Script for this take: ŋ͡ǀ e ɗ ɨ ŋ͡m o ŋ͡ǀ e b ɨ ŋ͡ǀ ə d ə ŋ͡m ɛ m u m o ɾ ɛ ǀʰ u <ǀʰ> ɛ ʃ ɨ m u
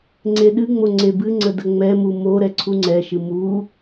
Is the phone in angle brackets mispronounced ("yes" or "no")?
yes